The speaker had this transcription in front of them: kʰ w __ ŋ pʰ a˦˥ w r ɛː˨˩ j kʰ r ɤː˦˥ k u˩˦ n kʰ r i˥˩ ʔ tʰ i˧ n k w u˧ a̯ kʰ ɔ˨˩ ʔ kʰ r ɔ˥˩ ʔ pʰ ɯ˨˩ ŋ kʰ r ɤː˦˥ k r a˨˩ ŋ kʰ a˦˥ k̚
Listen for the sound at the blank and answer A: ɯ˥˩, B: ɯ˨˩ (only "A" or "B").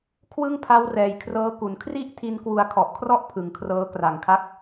A